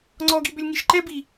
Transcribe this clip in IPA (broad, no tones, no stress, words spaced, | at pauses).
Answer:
ŋ͡ǀɔɡibʏlʲŋiʃ ǃɛbi